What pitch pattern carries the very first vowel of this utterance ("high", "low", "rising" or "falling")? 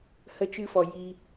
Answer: high